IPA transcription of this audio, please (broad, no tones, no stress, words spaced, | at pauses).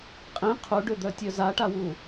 qʼĩ qʰuɖød̪œtʲœ zaʈawu